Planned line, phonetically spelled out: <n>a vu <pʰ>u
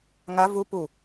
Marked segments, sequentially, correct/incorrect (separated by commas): incorrect, incorrect